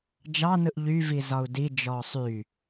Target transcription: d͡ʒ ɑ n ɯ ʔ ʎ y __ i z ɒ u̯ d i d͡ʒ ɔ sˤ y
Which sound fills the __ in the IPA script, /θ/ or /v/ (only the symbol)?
v